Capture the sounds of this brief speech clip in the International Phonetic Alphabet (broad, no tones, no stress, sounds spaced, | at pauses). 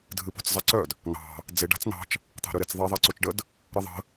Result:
dʱ ɨ p o̤ t͡s zˤ a ǀ œ d | n̪ ɑ̤ | d͡z e ɖ a̤ t͡s n̪ ɑ̤ t͡ʃ | t̪ ɑ̤ ɾ œ ɾ e t͡s ðˤ e ðˤ a ǀ o t͡ʃ ɖ ə d | ɾ ɨ ðˤ ə̤